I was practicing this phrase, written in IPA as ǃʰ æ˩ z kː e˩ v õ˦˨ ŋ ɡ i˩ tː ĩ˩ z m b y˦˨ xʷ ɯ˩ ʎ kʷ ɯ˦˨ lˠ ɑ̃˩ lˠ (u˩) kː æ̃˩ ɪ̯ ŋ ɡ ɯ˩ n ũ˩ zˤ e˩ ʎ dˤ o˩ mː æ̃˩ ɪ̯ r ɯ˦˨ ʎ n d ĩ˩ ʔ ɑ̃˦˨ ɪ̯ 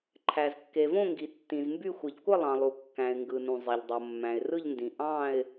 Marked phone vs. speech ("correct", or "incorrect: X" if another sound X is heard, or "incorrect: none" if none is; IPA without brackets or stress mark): correct